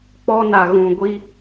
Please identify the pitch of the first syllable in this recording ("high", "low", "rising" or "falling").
high